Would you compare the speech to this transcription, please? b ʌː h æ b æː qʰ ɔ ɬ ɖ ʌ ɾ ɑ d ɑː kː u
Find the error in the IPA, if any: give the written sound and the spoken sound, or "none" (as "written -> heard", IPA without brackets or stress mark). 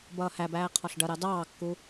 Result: none